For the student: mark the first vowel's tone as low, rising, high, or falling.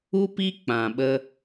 high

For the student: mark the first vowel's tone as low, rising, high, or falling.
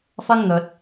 high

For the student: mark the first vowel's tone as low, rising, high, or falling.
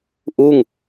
falling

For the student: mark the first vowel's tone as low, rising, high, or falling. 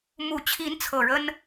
low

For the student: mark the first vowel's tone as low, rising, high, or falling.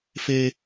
high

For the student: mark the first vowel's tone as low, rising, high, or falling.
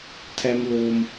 high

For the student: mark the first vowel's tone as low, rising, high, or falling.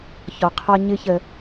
low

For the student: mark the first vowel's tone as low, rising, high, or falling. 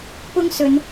high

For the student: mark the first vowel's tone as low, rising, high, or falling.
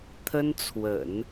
high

